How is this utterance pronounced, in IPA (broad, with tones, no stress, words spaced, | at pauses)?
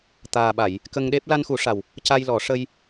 t̪aː˨˩ɓa˨˩˨j | kə˧ŋɗe˦˥p̚ la˧nxu˨˩˦ʂa˨˩w | ca˧jlɔ˨˩˦ ʂə˧j